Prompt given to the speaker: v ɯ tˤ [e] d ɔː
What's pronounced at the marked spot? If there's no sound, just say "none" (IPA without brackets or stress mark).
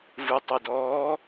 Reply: e